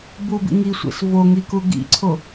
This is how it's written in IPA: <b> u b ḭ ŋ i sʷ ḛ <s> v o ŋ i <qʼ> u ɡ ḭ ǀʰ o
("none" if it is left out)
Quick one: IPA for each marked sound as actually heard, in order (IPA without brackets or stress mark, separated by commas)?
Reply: b, s, k